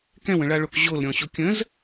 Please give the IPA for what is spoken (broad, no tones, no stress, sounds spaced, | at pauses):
k ɛ̃ w ə̃ ɭ a ɭ o k ʑ o l ɾʲ ɔ̃ ɕ o kʲ ə̃ z